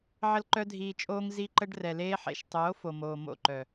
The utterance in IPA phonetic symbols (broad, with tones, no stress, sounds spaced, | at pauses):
ʕ ə˧ l ǃ œ˧ dʱ iː˨ t͡ʃʼ oː˧ ŋ z i˦ ǃ ə˦ ɖ r ɛ˨ l eː˦ ħ ḛ˧ ʃ tˤ oː˨˦ f o˨ m oː˨ m o̰˦˨ ǃ œ˨